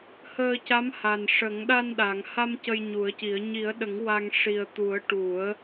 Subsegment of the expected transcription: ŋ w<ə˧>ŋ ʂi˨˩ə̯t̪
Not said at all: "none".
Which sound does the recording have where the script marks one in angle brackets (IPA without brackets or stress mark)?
a˧